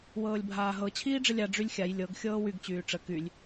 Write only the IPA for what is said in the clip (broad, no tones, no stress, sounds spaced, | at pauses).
w ɤː lʲ bʱ aː ɦ ɤ t͡ɕʰ iː ɖ͡ʐ ə lʲ a ɖ͡ʐ y lʲ xʲ a j lʲ ɤ ɡ xʲ ɤː w y ɡ t͡ɕ yː ʈ͡ʂ ə k y lʲ